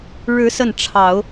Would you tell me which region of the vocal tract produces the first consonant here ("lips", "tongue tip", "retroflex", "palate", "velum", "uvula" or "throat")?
retroflex